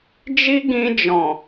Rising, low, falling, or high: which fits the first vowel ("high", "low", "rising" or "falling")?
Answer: high